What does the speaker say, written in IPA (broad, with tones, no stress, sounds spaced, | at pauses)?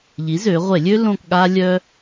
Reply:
ʎ i˩˥ z ø˩˧ ʁʷ e˧˩˧ lʲ ø˦ l õ˦˨ k ɠ a˦ lʲ œ˦